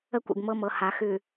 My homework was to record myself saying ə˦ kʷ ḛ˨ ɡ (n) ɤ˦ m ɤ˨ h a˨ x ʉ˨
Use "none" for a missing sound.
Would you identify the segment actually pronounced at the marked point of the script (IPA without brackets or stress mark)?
m